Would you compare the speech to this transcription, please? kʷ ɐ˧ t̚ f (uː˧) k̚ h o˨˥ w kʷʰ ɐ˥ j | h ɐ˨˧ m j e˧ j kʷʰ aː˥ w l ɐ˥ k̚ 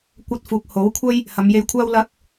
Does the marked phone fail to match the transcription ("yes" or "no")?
yes